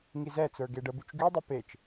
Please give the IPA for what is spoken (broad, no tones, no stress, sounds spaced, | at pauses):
ŋ i z ɛ t͡s ə˞ ɡ e ɖ ə b y t͡ʃ ɡ y dˤ ə p e t͡ʃ